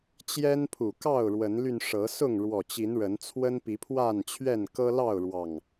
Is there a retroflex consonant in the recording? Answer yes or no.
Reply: yes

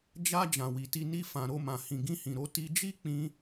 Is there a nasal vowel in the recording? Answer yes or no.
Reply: yes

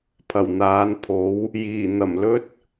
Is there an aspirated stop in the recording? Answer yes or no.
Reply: yes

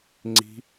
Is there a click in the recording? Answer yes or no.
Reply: yes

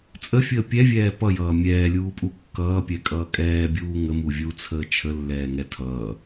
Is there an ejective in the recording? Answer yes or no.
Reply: yes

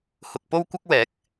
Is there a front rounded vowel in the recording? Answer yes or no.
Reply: no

